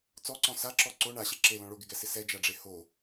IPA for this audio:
t͡s ɔ ǀ ɔ̃ s a ǁ ɔ ǀ o ɳ a ɕ e ǁ e l ɔ̃ ɭ o ɡ ɪ ɡ ɛ s ɪ s ɛ d͡ʒ a ɖ͡ʐ e h o

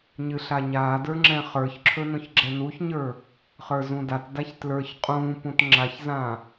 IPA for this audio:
ɲ ɨ ɬ a ɲ aː d ə˞ ŋ͡ǁ ɛ̃ χ ə˞ ç ǁʰ ɵ n õ ç ɡ͡ǁ ɛ n u ç ɲ ə˞ | χ ə˞ z ũ d a t d a ç t l ə˞ ç qʼ ũː p ũ t ŋ͡ǁ a ç z ã

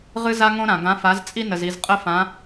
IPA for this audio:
ʁ ɨ˧ z a˧ ŋ õ˧ ɾ ã˩ ɡ ã˩˧ f a˩˧ z t͡sʼ i˧ n ə˩ z i˩ z qʼ ə˧ f ã˩˧

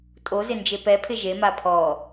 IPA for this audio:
tʼ o z ɪ n d͡ʒ e p ɛ pʰ ɪ ʒ e m a pʰ ɔ

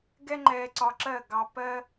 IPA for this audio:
ɡ ɛ˦ ŋ͡ǃ ɛː˧ ǀ ɒ˧ ǁ ɜ˦˨ ɡ ɑ˧ p ɜ˦

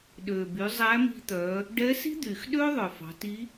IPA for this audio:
ɗ øː˩ b y˩˧ zˤ æ˧˥ m i̤˧ t̪ œ˩˧ | ɖ ɛ˧˥ s i̤˥ d̪ yː˩ x ɗ øː˥ ðˤ œ˩ f ɑ̤˩˧ t i˧˥

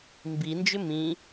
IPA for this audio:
m b i n d͡ʒ ʏ m ĩ

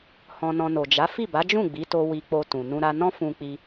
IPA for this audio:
h ɔ̃˧ n ɔ̃˧ n o˨ d͡ʒ a˨˦ f i˦˨ b a˨˦ d͡ʒ ũ˦˨ ɡ͡b i˨˦ t o˧ w i˧ k͡p o˧ t ũ˨ n ũ˧ ɾ a˧ n ɔ̃˦ f ũ˧ k͡p i˧

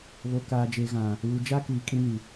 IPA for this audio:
β o˨ k aː˨ d͡ʒ e˨ ɣ ã˨ | uː˨ d͡ʒ a˦ k iː˨ kʼ ĩ˦ n i˨

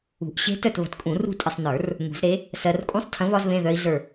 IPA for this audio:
ṳ˨˩˦ ʔ ɕ e̤˦˥ t œ˦˨ t β ə̤˨˥ t kʼ ũ˨˩˦ r ṳ˦˨ tʼ ə˨ sˤ n ə˞˨˩˦ r | ŋ ṳ˨˩˦ z ɾ e˨˥ | s ɜ˨ r kʼ ũ˦˥ sˤ tʰ ə̃˨˥ β ɒ˦˥ z β ẽ˧˥˧ ð œ˦˥ i̯ ɮ ə˞˦˨

